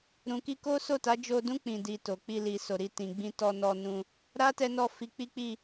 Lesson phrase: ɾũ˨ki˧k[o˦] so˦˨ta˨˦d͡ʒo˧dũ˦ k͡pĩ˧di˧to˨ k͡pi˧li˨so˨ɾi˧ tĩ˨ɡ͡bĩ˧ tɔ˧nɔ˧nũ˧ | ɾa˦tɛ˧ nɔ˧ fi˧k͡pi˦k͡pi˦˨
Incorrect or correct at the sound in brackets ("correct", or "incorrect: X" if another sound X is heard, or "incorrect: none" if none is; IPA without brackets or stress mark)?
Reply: correct